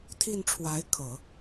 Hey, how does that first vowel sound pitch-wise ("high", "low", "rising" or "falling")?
falling